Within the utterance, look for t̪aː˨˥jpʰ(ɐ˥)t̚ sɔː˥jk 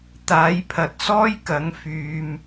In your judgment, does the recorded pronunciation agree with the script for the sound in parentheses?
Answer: no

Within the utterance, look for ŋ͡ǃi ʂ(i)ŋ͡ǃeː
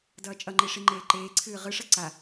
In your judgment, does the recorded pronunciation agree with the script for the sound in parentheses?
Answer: yes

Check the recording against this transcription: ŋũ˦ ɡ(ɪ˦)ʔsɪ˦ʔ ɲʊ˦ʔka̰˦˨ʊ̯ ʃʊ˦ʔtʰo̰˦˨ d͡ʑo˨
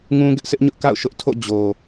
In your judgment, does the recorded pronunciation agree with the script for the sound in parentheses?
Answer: yes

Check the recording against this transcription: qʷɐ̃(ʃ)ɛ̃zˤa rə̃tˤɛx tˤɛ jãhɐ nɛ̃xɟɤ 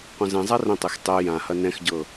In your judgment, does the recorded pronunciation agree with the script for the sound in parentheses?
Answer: no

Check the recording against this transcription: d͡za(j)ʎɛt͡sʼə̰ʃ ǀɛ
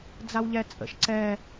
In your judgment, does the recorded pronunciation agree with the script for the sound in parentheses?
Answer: no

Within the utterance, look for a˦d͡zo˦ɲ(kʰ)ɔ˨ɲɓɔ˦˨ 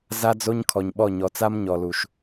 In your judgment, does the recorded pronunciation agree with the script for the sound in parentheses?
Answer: yes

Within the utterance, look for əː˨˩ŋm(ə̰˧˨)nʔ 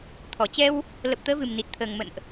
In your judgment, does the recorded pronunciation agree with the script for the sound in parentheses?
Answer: yes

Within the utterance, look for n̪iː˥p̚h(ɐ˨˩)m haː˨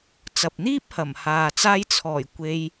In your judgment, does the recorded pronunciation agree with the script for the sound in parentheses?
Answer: yes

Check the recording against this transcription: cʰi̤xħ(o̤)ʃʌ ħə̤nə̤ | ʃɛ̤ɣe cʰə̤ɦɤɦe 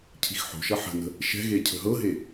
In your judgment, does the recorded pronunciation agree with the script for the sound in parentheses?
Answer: yes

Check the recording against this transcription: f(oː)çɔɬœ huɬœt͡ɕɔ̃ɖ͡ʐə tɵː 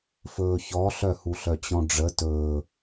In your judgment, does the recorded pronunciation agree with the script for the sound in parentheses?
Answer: no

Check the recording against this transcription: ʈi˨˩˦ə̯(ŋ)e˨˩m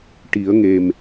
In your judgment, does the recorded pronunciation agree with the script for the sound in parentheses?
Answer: yes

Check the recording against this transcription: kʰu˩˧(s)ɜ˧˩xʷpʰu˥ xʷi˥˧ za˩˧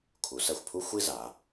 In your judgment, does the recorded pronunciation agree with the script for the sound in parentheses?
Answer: yes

